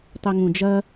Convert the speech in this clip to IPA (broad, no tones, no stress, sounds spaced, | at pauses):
tˤ i ŋ ũ d͡ʒ ɐ